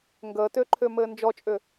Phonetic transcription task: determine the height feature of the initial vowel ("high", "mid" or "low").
mid